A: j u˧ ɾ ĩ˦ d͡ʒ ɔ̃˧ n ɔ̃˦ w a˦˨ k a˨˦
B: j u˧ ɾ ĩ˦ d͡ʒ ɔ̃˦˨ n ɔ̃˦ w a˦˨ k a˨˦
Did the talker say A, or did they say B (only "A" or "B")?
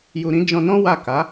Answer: A